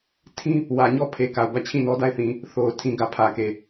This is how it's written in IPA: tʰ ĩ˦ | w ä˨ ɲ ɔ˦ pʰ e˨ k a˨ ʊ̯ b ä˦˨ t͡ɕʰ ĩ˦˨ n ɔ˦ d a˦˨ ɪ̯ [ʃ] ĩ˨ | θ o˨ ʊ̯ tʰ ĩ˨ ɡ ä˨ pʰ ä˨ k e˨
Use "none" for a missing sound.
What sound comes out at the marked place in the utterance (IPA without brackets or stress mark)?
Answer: θ